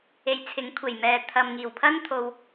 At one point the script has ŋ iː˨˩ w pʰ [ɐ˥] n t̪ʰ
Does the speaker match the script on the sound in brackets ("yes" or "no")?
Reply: yes